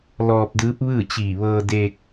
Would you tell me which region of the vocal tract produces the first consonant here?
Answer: tongue tip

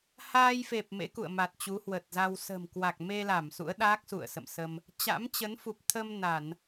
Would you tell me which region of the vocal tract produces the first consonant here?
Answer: throat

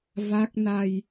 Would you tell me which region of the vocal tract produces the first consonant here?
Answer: lips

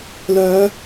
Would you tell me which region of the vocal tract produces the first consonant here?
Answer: tongue tip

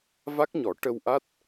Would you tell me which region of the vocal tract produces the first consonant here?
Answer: lips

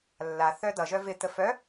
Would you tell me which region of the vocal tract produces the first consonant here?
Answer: tongue tip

